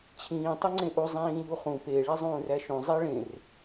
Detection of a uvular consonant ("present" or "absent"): present